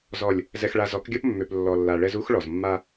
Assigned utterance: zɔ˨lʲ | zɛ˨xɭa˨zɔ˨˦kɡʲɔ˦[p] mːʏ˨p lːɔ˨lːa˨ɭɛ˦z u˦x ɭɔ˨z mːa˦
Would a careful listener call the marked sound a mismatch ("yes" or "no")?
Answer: no